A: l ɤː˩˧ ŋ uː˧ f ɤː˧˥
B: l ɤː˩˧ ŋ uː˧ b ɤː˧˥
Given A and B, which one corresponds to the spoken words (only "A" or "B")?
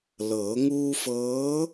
A